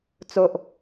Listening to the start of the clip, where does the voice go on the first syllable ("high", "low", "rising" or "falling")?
low